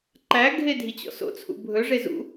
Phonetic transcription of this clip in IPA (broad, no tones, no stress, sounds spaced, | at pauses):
ǃ æ ɡʱ e dʱ i t͡ɕ ɔ̰ s o̰ t͡sʰ ṵ bʱ ɵ ʐ e z ṵ